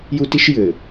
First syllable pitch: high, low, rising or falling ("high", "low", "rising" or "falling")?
high